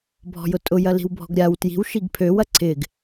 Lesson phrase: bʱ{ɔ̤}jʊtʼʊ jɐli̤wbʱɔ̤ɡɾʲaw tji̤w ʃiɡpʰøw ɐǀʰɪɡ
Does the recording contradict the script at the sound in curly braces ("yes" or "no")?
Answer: no